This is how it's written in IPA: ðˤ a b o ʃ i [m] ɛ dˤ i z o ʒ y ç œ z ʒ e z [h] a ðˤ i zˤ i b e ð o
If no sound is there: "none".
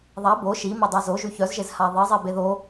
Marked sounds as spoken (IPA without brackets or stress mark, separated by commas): m, h